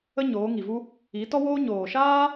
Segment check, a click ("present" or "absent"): absent